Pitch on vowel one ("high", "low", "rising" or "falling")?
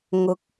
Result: rising